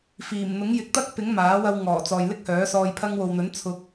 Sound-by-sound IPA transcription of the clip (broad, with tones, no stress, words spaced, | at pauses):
fiː˨˩m n̪ʊ˨˥ŋjɪ˨˥k̚ t̪ɐ˥k̚ pɪ˨˥ŋ maː˨˥wɐ˧wŋɔː˨˩ t͡sɔː˨jlɪ˥k̚hœː˨˥sɔː˧j pʰɐ˧ŋwo˨wn̪ɵ˨˥n t͡sʰʊ˧k̚